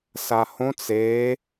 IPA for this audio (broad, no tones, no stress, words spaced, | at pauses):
sahõt͡s e